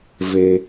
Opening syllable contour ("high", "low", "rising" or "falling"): low